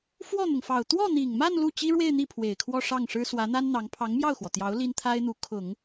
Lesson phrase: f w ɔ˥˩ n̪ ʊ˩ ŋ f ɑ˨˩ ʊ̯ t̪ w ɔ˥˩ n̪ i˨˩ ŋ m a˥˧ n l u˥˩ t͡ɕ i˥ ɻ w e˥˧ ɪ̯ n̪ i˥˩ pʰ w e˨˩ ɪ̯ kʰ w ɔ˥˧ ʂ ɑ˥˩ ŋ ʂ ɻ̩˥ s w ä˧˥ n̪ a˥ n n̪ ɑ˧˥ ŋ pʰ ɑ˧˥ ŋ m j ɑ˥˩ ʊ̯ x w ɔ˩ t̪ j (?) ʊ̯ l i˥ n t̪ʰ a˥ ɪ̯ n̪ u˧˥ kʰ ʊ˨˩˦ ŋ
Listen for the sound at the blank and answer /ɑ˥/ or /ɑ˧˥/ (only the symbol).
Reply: ɑ˧˥